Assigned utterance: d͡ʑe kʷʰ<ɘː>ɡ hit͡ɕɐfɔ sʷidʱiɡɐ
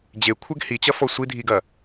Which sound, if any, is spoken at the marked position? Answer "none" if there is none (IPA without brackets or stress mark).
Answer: ɘ